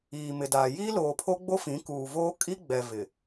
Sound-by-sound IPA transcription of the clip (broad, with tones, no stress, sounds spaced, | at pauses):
iː˨ m ɪ˨ d aː˨ j iː˦ l oː˨ pʰ o˦ ɡ͡b o˦ f ĩ˨˦ k uː˨ v oː˦ kʼ i˦ ɡ͡b ɛ˨ v ɪ˨